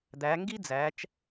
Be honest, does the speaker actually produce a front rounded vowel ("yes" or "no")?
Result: no